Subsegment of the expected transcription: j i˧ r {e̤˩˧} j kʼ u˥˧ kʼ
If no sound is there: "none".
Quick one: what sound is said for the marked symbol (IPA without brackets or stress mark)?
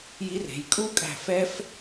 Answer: e̤˩˧